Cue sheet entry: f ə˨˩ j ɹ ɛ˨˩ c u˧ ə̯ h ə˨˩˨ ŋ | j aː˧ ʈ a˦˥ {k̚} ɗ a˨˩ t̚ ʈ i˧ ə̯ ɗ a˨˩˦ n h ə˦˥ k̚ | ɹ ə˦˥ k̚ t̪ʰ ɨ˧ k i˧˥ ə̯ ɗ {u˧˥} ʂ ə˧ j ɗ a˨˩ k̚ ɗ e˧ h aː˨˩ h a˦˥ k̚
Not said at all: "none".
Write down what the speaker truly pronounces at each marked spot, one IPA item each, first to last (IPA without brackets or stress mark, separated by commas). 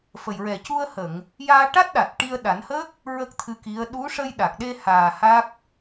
t̚, u˧˥